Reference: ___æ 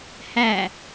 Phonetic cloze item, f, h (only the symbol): h